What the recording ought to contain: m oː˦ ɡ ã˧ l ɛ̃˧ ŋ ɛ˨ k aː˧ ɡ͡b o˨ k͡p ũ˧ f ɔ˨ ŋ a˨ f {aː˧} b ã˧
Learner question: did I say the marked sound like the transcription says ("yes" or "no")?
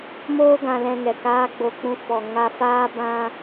yes